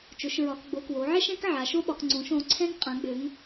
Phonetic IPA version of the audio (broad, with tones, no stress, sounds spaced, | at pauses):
t͡ʃ ʊ˩˧ ʃ ɹ ɒ˩˧ k ɡ͡b o˩˧ k w o˩˧ ʕ ɛ˦ ʃ ɛ̃˦ k ʕ a˩˧ ʃ o˦ ɓ ɒ˩˧ k ŋ͡ǀ õ˩˧ ʃ õ˩˧ ǀʰ ɛ̃˦ ŋ qʼ ã˩˧ ɡ͡b ø˩˧ ŋ